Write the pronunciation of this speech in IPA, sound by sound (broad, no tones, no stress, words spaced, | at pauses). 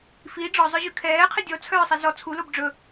fi ɖ͡ʐɔzˤœʑʉ kʰɛːqʰi dʲɔt͡sʰœːsˤi zɔ t͡sʰulob ɖ͡ʐɵ